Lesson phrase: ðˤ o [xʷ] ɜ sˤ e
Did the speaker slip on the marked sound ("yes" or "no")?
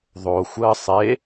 no